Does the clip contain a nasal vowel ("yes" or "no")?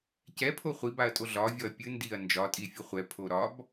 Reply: no